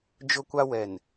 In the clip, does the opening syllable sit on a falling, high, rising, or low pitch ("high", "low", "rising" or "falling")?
high